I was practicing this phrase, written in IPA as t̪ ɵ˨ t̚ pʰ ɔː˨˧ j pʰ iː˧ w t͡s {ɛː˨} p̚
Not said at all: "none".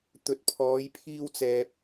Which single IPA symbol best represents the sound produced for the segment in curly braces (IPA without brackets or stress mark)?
ɛː˨